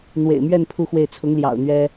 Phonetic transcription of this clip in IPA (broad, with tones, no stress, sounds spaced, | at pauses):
n̪ w ḛ˨˩ ɪ̯ m ɥ ɛ˥˧ n pʰ u˥˧ x w e˥˩ ɪ̯ t͡sʰ ʊ˧˥ ŋ l j ɑ̰˨˩ ʊ̯ n̪ ɥ ɛ˥